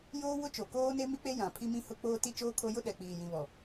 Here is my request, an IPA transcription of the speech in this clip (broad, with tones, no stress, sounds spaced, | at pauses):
j oː˦ w ʊ˦ t͡ʃ o˨ k oː˦ n e˦ m i˦ k͡p e˦ j ã˨ pʰ i˦ m ĩ˦ h ʊ˦ k͡p oː˦ t i˦ t͡ʃ oː˦ kʰ o˦ j ʊ˦ ɗ ɛ˨ k͡p iː˨ j ĩ˨ β ɔ˨